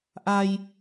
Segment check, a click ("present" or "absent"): absent